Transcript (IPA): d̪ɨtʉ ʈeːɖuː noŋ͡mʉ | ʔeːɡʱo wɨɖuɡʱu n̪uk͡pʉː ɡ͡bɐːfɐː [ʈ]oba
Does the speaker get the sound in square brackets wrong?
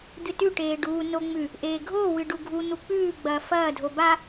yes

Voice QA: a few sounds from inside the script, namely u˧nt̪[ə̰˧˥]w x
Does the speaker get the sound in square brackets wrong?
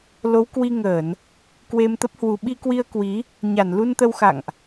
yes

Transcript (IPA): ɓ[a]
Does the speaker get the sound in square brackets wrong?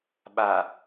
no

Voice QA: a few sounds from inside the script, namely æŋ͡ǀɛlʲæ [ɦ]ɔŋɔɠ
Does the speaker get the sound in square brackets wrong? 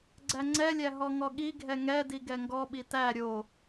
no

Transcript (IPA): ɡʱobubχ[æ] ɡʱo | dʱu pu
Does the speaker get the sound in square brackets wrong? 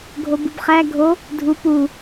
no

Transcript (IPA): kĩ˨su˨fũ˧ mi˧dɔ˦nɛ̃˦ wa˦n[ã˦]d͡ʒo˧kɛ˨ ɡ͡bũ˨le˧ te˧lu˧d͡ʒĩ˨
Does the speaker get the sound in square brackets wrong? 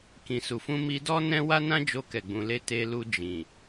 no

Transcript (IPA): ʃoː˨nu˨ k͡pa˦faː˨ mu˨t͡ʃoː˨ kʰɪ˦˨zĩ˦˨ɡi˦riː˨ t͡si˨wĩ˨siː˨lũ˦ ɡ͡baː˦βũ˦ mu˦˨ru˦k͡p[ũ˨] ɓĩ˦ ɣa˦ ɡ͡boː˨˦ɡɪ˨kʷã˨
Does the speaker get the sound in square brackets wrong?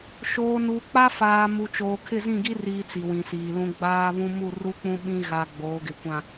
yes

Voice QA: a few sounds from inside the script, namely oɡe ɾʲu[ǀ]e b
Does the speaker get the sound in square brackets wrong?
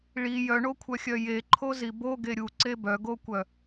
no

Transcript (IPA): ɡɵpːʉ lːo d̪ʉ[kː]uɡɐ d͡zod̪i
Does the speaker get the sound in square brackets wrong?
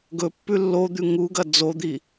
yes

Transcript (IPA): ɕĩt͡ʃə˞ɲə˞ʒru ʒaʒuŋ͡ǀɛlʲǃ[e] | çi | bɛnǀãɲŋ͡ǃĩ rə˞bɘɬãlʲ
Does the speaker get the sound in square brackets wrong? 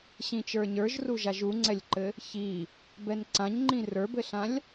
yes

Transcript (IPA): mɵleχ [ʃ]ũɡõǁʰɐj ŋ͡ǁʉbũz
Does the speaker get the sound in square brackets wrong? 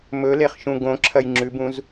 no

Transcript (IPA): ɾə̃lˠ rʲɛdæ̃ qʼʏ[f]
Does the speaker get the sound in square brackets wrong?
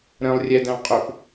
no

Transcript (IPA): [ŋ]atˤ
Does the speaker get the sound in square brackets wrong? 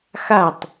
yes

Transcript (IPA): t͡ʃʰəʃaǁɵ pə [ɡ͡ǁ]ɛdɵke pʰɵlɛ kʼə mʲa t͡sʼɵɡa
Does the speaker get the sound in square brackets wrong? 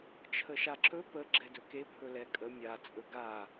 no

